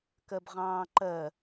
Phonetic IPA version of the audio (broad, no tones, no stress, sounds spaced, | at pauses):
k ɜ b ʁ ɑ̃ː ǃ ɜ